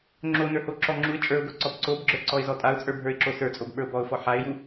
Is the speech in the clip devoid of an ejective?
no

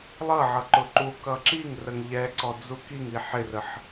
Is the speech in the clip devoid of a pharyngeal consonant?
no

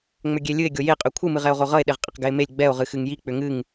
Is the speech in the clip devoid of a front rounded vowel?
no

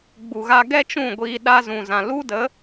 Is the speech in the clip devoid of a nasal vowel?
no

